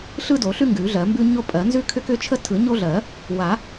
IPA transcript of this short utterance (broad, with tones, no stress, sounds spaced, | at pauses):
ɬ ɯ˦ d o˨˩˦ ɬ ʉ˦ ŋ ɡ ʉ˨˩˦ ɮ ɜ˨˩˦ m b ʉ˦ ɲ o˦ pʼ ɜ˨˩˦ n z ʉ˦ kʰ ʏ˦ k ʏ˦ t͡ʃʰ ə˦ tʰ ɯ˨˩˦ ɲ o˦ ɮ ɜ˨˩˦ | w a˨˩˦